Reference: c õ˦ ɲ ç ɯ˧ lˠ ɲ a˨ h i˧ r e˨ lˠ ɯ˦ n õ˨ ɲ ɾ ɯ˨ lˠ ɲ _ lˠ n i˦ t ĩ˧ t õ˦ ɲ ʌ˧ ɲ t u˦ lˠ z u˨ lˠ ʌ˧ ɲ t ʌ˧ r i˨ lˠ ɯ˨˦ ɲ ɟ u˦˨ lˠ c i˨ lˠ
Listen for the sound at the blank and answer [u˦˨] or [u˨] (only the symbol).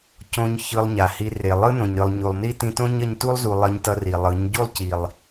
u˨